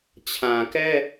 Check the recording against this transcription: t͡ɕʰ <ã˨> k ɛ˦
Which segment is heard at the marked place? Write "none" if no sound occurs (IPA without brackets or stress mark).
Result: ã˨